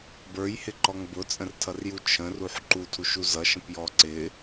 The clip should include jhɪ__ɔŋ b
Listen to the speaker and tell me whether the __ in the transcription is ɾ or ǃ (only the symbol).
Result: ǃ